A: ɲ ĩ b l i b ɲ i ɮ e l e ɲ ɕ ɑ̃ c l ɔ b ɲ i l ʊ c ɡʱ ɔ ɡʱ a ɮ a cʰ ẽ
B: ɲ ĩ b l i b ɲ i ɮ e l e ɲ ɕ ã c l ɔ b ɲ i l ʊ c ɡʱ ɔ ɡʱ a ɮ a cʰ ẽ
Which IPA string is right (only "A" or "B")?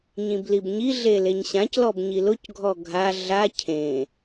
B